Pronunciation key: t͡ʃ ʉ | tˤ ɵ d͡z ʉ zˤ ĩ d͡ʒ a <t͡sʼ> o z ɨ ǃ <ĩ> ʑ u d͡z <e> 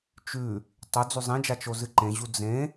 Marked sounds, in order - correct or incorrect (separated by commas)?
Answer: incorrect, incorrect, incorrect